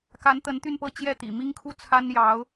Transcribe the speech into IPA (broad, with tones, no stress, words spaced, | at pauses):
ka˧˥nt̪ə˧˥n t̪y˥˧npɤ˥˧ t͡ɕjɛ˥˩t̪ḭ˨˩mi˥ŋ kʰu˥˩t͡sʰa˥n jɑ˧˥ʊ̯